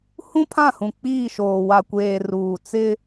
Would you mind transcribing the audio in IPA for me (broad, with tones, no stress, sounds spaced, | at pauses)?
h ũ˦ pʰ ã˦˨ h ũ˨ k͡p iː˦˨ ʃ oː˨ w a˨ kʷ eː˨ r uː˨ t͡s ɪ˦